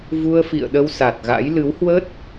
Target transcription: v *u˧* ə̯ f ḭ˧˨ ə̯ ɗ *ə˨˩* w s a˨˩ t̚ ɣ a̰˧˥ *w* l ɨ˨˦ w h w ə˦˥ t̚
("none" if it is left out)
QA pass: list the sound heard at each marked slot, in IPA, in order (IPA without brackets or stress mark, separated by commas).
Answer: u˧, ə˧, j